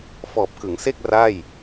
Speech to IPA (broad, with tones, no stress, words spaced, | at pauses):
fɔː˨˩p̚kɯ˩˦ŋse˥˩k̚ ra˥˩j